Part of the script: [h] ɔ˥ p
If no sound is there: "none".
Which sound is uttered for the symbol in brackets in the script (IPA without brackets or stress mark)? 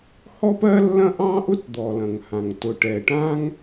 h